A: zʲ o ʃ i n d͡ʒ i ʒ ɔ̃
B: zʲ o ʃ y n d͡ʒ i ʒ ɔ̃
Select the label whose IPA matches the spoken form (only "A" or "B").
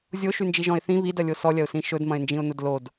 B